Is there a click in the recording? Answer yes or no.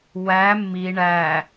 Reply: no